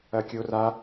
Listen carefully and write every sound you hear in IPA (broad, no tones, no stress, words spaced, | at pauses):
ɐkʲora